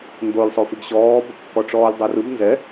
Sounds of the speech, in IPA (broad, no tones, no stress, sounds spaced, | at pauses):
n d o lʲ sˤ o f i ɡ ɕ ɔː b | k ɔ ʈ͡ʂ ɔː lʲ dˤ o r ɯ b n z ɛ